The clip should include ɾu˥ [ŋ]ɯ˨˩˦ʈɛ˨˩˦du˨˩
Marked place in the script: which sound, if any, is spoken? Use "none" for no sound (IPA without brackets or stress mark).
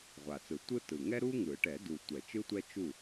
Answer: ŋ